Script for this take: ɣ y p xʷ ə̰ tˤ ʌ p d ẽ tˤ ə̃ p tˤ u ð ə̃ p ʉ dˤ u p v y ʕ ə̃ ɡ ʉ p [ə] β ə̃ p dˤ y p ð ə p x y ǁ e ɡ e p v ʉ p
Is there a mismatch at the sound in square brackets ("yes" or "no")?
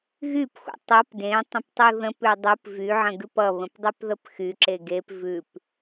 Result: yes